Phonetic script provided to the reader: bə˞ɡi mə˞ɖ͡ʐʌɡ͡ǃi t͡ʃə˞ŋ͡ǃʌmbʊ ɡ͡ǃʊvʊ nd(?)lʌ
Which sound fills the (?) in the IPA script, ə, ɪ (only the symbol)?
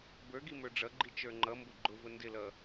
ɪ